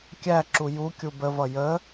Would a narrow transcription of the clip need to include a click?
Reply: yes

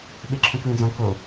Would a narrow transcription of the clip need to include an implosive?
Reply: yes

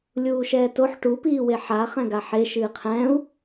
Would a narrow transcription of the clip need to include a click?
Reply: no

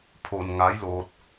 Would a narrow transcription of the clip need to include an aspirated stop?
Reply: yes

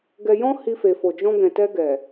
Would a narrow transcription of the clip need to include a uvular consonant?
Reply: no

